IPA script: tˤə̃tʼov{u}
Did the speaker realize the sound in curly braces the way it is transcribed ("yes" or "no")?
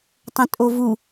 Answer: yes